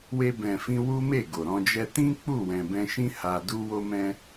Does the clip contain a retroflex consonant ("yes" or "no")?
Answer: no